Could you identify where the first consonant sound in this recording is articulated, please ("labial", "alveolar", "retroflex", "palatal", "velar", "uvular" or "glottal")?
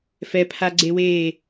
labial